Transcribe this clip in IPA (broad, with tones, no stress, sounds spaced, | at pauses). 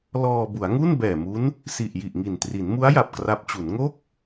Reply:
l ɔː˧ b u˩˦ a̯ ŋ u˥˩ n b ɛː˨˩ m u˦˥ n | s i˨˩ ʔ j i˨˩ ʔ ŋ i˨˩ n t r i˩˦ n m u˦˥ a̯ j a˨˩ p̚ k r a˦˥ p̚ t͡ɕ u˩˦ n ŋ o˥˩ k̚